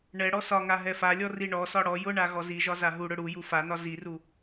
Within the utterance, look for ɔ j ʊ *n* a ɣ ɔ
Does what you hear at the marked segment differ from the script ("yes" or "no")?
yes